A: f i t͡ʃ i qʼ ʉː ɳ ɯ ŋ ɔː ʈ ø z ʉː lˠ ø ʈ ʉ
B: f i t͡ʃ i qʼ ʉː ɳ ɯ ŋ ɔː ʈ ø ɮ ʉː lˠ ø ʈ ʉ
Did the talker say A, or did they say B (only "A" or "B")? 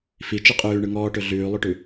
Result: B